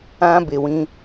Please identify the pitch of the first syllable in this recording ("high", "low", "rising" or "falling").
high